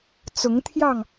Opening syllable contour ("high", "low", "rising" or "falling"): rising